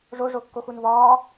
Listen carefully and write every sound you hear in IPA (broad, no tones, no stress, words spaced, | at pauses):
ʐo ʐokːoxunvɒː